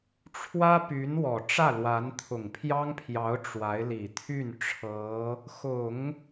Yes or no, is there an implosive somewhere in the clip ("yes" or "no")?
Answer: no